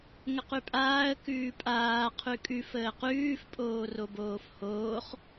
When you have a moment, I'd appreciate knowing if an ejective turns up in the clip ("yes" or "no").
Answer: yes